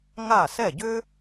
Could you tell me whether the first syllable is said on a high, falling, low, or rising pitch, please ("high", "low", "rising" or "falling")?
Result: falling